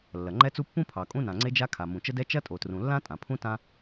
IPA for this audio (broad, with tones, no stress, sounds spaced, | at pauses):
lː ɐ˩ ŋ͡ǃ ɛ˥ t͡s u˥ pː ũ˥ pʰ ɑ˩ kʼ ũ˥ n ã˩ ŋ͡ǀ e˥ d͡ʒ a˥ kʰ a˩ m ũ˩ t͡ʃ ə˥ d ɛ˥ t͡ʃ ɐ˥ tʼ o˩ t r ũ˩ lː ã˥ tʼ ã˩ pʰ ũ˥ t ã˥